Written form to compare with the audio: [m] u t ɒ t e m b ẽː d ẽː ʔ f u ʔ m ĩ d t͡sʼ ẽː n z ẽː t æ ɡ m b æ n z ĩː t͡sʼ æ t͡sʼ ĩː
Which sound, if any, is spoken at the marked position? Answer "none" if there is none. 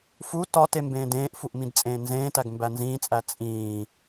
f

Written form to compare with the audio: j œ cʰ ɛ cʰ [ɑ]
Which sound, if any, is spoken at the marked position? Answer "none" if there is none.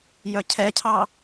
ɑ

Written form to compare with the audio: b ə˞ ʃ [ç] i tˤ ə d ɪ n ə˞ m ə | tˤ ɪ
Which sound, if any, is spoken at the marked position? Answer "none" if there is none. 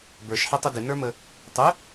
ħ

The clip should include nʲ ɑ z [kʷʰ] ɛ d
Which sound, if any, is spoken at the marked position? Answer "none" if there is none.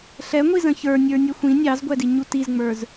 ɡʷ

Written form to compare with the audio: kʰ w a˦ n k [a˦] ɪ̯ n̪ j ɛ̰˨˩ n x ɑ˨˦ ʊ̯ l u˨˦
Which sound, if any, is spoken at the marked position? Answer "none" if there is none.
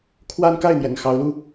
a˥˨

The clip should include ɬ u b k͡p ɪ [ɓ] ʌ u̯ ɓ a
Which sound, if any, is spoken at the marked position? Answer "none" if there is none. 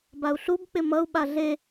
m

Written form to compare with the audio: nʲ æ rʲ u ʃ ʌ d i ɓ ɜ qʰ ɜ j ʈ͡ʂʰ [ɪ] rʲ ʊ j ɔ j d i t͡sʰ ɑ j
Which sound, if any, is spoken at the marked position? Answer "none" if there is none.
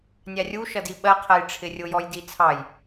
ɪ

